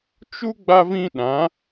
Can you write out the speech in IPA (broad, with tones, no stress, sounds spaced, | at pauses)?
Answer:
t͡ʃ u˦ ɡ͡b a˦ v ĩ˦ ɗ ã˨˦